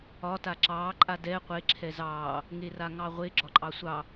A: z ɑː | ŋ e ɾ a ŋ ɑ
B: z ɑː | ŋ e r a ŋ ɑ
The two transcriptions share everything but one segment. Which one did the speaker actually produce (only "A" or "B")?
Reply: B